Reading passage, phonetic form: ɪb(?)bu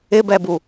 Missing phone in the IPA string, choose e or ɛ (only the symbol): ɛ